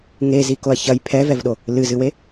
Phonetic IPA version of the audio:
ŋ e z i k o ɐ̯ ç ɐ j pʰ ɛ v ɛ v ɗ o | l ɨ z ɨ w e

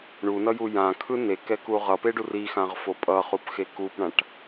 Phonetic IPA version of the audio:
ɳ u n ʌ j u j ã kʰ ɯ n e k ɛ k u ʁ ʌ p e ɖ u r i x ã ʁ f o pʼ ʌ χ u p x e k u p ɳ ã ʈ

